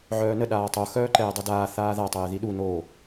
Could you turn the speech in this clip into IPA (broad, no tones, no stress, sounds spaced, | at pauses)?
ʕ œː n ə ɗ aː tˤ o x œː ǃ ɛː dˤ o d aː θ aː ð a tˤ ɛː ð i ɗ u n oː